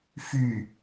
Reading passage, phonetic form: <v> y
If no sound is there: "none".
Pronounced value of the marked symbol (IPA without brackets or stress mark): f